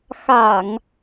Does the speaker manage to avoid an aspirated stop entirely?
yes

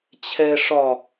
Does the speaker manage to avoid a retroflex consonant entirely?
no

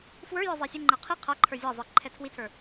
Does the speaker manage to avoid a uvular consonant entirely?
no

